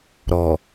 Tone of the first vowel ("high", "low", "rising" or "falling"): low